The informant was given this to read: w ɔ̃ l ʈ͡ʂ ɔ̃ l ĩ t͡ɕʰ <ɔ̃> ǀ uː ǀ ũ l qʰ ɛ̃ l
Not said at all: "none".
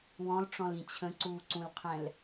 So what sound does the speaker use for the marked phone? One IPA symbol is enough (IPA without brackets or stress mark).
ə̃